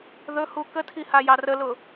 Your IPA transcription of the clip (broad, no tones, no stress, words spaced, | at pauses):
ðɵhu kətʰi hajɑrəlʊ